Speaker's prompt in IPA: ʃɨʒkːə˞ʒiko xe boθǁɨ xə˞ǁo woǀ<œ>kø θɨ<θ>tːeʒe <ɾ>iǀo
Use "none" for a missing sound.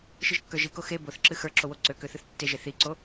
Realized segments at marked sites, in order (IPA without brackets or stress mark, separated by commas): ø, θ, θ